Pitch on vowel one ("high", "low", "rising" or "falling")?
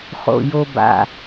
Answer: low